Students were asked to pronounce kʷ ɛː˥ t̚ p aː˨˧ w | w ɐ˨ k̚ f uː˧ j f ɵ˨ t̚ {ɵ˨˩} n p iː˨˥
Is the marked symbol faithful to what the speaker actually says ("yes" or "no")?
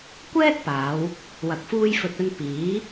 no